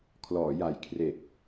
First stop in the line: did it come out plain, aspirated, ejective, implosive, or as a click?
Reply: aspirated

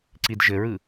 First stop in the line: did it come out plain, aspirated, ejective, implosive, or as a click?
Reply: click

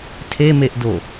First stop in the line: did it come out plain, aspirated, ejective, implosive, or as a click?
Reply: aspirated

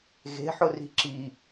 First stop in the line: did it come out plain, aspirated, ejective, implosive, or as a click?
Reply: click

